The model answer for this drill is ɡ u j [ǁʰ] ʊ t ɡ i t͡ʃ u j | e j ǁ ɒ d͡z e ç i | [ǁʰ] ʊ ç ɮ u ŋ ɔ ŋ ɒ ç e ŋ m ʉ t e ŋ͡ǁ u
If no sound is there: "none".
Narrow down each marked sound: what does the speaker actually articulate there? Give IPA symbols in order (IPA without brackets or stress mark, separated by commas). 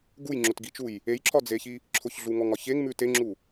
ŋ͡ǁ, ǁʰ